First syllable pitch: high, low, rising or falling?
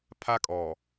high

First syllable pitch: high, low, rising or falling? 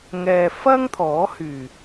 low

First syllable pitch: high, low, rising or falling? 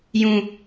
high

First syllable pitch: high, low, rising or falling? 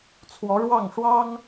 rising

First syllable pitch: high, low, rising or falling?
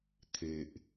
low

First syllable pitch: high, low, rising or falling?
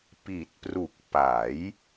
low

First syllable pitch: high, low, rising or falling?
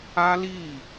high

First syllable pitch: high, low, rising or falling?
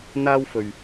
high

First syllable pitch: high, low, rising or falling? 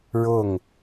falling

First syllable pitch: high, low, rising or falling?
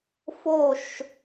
falling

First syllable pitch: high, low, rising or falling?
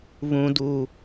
high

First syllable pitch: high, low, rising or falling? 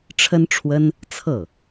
high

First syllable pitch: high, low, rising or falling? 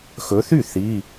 rising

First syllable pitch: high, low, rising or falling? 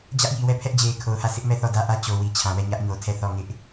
high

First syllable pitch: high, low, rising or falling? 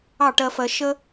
falling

